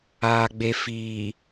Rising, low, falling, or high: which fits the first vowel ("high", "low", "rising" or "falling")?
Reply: low